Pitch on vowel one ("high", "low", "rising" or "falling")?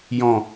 low